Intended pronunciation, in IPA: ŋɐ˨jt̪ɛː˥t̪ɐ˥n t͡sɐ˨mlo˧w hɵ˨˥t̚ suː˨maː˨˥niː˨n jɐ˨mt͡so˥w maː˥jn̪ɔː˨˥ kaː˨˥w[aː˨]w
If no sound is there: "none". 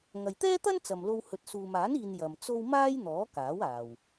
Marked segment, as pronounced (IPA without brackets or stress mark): aː˨